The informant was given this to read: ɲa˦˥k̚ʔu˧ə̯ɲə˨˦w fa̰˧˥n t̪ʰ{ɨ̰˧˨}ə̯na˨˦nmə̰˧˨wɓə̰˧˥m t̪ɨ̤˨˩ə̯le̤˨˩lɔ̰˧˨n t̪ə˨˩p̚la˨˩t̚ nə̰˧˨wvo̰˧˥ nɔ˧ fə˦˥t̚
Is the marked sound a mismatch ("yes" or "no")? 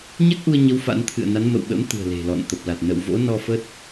no